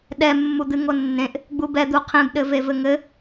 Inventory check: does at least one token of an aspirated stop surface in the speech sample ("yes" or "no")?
yes